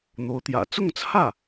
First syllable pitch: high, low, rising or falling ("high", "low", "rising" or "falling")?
rising